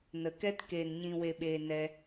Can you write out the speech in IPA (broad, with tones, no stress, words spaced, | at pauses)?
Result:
nə˧kɛ˦t keː˧nɲĩ˧we˧ɓeː˧ nɛ˦